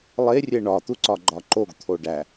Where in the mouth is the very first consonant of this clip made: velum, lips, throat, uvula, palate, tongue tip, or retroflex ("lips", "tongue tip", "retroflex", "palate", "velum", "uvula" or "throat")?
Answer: tongue tip